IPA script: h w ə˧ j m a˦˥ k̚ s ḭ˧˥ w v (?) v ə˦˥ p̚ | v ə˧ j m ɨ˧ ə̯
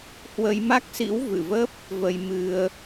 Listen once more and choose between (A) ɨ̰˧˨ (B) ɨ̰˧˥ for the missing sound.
A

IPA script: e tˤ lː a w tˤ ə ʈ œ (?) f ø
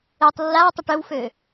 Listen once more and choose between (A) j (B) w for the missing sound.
B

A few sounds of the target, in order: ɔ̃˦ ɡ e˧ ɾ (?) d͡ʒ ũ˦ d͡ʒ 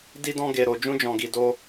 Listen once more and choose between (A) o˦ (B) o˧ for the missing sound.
B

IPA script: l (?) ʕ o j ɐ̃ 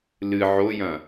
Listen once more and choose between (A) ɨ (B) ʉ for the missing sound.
A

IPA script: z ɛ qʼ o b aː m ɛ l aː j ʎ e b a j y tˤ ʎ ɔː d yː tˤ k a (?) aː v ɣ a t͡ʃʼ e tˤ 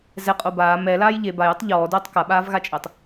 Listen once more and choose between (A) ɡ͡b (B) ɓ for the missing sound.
B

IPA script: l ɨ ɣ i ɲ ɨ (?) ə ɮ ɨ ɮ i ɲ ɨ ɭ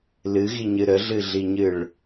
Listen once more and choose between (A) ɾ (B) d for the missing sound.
A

